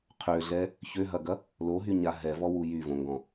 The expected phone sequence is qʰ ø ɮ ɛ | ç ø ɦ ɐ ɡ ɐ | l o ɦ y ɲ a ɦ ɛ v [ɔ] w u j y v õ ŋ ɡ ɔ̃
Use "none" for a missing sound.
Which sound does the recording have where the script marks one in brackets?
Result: ɔ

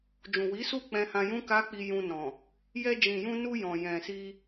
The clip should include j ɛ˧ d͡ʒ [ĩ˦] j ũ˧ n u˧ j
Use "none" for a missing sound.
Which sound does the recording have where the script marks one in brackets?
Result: ĩ˨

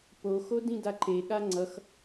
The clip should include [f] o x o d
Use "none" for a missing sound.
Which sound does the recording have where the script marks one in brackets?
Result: p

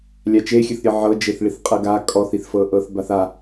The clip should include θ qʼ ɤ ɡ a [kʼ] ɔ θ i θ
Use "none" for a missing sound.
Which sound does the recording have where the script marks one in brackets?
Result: kʼ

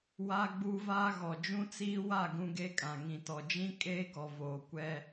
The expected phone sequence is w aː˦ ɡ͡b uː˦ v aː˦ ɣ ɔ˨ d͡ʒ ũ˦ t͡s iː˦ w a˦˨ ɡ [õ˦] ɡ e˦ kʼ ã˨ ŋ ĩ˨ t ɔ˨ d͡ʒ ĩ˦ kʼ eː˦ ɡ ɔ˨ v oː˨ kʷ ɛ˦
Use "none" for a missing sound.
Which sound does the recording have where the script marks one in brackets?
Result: ũ˦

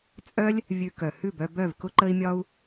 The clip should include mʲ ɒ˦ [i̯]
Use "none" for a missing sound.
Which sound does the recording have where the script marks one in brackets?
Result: u̯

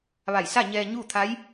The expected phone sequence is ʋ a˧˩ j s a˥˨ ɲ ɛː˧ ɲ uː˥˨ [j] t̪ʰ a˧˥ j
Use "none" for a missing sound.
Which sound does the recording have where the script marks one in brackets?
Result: none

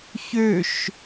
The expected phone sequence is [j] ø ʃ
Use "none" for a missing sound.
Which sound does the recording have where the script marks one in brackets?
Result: ç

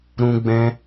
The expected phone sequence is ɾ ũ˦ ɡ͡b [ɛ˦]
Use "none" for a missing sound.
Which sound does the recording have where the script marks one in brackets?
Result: ɛ̃˦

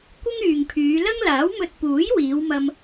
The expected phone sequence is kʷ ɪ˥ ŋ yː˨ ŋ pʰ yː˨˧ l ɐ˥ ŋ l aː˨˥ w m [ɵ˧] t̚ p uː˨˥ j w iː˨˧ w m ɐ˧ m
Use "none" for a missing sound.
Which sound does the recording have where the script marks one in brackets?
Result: ɵ˧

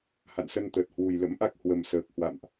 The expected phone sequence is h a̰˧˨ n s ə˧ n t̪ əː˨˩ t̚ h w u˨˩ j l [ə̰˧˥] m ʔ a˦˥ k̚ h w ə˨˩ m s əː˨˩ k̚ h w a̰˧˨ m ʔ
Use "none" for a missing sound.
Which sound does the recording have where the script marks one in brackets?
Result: ə̰˧˥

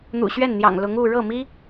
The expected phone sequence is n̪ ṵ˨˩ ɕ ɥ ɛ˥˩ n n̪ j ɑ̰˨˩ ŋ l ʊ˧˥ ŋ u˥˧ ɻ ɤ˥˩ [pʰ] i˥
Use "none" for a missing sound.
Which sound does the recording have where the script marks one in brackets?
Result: m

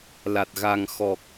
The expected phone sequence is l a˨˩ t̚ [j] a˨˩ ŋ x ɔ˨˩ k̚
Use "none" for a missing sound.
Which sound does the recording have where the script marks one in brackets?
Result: ɣ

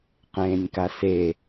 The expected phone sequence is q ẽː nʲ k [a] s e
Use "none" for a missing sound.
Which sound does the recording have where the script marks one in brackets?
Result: a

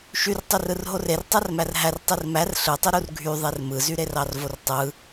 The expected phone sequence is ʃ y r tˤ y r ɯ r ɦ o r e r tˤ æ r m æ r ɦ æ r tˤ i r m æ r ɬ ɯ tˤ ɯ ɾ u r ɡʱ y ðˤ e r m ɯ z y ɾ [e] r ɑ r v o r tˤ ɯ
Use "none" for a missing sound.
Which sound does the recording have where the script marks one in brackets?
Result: e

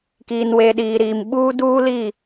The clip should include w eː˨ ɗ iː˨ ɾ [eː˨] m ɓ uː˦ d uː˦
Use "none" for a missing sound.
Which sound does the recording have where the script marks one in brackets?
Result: iː˨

